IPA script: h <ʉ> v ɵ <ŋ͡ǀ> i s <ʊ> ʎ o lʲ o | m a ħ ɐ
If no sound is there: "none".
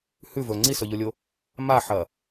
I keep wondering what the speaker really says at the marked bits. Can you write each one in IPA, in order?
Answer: ʉ, ŋ͡ǀ, ɵ

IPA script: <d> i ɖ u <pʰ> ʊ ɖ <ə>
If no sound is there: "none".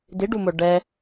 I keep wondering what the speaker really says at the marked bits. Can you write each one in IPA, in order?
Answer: d, m, ɛ

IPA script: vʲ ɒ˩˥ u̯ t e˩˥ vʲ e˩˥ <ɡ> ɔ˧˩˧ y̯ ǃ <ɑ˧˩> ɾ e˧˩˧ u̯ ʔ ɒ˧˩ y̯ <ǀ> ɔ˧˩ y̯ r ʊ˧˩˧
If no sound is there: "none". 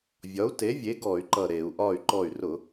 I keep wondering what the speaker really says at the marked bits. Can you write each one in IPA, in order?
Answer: ɡ, ʌ˧˩, ǃ

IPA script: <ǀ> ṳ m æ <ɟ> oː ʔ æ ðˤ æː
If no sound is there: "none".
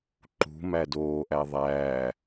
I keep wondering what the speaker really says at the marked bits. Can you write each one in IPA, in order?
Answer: ǃ, d

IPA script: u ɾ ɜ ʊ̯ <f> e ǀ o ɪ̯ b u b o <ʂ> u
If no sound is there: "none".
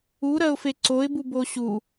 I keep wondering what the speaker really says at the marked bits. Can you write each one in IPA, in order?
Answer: f, ɕ

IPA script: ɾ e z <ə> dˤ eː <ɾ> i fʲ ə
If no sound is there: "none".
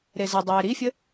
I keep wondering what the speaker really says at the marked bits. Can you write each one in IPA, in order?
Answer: ə, ɾ

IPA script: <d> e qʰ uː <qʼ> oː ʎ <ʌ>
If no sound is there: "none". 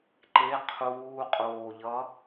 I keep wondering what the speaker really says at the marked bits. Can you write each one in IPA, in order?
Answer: ǃ, qʼ, ʌ

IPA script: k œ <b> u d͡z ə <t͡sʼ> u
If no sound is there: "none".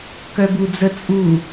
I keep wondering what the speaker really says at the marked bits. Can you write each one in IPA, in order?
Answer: b, t͡sʼ

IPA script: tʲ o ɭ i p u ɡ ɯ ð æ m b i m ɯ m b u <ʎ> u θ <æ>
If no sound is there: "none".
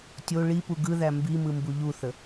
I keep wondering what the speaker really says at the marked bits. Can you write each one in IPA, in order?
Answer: ʎ, ə

